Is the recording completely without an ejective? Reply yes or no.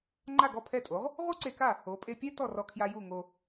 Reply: no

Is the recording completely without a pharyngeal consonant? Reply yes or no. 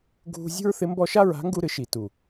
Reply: yes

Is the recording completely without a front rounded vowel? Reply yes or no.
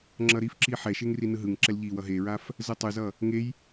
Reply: yes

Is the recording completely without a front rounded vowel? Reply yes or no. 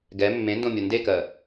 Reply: yes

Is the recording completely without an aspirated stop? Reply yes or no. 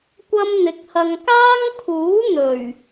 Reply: no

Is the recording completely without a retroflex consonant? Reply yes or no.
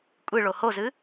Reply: no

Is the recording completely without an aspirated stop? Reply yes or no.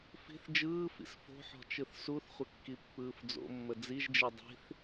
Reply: yes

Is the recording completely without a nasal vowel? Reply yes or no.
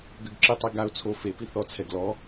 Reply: yes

